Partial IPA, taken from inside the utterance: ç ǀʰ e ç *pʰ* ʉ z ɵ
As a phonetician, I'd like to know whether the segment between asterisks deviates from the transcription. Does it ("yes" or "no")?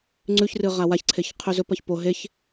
yes